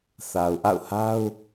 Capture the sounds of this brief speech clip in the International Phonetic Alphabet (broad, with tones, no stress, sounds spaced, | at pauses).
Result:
θ a˨ ʊ̯ ʔ a̰˦˨ ʊ̯ h a˦ ʊ̯